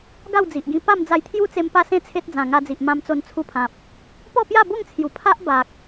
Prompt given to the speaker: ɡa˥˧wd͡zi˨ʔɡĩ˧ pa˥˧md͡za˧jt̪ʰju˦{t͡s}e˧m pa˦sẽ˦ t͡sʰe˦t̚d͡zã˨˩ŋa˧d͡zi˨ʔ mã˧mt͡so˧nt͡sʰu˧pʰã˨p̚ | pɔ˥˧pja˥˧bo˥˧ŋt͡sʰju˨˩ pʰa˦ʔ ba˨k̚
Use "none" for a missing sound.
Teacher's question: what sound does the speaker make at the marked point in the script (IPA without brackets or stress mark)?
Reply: t͡s